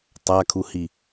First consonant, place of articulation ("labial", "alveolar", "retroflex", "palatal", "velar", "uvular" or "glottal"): alveolar